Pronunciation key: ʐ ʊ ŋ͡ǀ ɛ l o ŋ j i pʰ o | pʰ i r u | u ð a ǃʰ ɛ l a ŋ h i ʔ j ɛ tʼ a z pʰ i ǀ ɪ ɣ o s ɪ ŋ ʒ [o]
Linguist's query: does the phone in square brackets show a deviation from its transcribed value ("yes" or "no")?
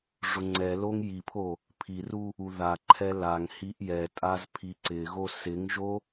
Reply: no